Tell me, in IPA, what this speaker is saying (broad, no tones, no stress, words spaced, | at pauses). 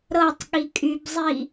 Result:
ɾɤtˤ ɠikʼybzˤi